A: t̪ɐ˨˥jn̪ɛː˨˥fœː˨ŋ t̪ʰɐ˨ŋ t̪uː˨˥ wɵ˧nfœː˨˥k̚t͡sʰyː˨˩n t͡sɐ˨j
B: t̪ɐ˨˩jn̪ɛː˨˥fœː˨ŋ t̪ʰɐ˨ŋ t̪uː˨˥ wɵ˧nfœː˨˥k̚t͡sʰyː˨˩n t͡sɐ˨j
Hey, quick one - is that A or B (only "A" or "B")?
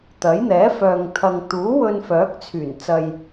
A